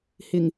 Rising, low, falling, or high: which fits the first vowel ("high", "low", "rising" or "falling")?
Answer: low